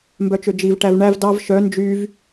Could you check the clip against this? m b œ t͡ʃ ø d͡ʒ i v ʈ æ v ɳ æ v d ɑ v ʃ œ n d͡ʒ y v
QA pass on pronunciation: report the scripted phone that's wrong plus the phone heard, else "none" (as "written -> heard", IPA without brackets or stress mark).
none